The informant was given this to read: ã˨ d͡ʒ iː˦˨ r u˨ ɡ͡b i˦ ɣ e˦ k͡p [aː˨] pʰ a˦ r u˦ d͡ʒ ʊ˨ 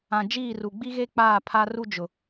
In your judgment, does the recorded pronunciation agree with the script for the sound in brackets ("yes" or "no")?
no